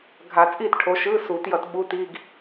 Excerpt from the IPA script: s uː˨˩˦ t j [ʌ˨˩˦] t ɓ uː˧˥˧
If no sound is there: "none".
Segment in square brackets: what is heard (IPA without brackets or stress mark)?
ʌ˨˩˦